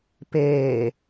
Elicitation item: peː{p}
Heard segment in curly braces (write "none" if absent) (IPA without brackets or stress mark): none